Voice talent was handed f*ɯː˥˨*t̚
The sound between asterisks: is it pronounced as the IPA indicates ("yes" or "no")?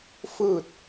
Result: yes